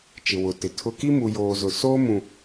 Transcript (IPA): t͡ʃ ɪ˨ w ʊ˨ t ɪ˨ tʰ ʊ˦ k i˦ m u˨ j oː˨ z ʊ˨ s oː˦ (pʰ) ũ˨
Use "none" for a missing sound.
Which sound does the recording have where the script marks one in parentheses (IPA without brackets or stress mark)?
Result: m